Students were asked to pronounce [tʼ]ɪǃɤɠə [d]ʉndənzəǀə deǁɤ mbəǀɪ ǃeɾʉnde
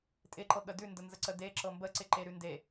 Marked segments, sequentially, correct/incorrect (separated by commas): correct, correct